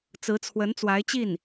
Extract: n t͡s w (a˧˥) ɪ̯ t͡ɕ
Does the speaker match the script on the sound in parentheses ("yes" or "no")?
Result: yes